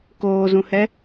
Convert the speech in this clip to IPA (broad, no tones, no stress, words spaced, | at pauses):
koːzũhɛ